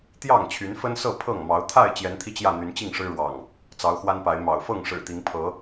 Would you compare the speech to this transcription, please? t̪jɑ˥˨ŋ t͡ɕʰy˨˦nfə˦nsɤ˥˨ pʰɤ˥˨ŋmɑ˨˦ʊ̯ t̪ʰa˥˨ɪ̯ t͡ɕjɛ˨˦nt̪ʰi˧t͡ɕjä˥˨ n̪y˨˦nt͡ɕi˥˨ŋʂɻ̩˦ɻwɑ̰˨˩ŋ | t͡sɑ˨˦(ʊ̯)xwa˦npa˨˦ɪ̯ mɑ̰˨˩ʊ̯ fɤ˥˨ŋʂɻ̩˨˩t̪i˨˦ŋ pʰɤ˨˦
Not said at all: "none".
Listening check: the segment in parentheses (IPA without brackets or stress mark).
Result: ʊ̯